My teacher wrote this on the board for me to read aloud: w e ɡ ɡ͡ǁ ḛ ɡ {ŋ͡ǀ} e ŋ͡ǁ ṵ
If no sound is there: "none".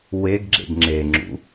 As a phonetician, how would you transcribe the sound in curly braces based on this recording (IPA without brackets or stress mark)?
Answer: ŋ͡ǁ